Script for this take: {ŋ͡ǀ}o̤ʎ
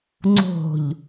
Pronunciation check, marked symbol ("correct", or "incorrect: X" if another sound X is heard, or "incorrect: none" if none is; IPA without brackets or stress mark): correct